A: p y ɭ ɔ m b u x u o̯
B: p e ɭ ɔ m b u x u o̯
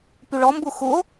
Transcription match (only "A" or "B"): A